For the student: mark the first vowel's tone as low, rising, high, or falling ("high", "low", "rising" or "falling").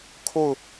falling